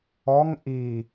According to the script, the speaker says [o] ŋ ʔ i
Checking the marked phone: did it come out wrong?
yes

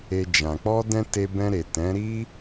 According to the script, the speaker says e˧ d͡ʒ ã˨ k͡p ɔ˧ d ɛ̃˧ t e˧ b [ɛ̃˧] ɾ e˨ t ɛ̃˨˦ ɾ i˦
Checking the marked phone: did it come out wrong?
no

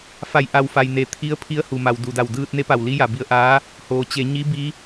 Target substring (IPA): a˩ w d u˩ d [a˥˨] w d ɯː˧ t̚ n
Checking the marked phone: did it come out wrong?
yes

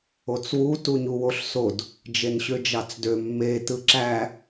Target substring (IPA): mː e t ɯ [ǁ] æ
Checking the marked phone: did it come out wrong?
no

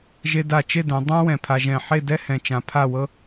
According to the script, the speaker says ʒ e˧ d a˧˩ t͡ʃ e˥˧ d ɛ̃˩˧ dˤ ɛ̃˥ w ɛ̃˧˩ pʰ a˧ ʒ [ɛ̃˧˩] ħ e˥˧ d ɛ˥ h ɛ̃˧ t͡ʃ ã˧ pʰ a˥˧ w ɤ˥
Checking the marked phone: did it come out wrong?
no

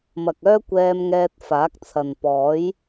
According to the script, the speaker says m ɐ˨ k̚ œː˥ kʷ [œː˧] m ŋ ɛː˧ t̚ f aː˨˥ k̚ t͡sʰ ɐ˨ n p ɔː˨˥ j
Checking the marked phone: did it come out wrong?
yes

